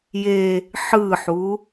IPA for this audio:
j e | ħ ɯ ħ u

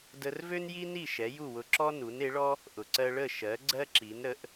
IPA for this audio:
d ə˧ r v ø˥ n j i˥ n i˥˩ ʃ ɛ˩˥ j u˥˩ w ʊ˧ ǁ ɔ˥ n u˩˥ n e˩˥ ɭ ɔ˥ | ʔ ʊ˩ ǀ ɜ˧ ɭ ə˥˩ ʃ ɜ˩˥ ɡ͡ǀ ɜ˥ ǁ i˩˥ n ɾ ə˩˥ ʔ

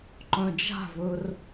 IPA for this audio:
ǃ œ̃ d͡ʒ a̤ v ɵ r

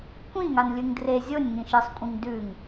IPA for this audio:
kʷ ĩ ŋ a n lʲ ɨ ŋ d r e zʲ o nʲ ŋ ĩ ʃ ɨ sˤ kʷʼ ĩ ŋ d ʉ ŋ

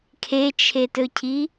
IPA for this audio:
kʰ e t͡ʃʰ e t ɵ cʰ i

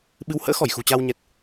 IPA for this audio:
ɓ ɨ˨˦ w h ə̰ː˧˥ x ɔ˧˩ j x ṳ˨˩ t͡ɕ a˧ w ɲ ɛ˨˩ t̚

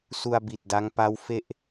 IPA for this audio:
s u˧ a̯ b i˨˩ t̚ d a˦˥ ŋ p a˦˥ w f e˥˩ ʔ

